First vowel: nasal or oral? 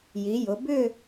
oral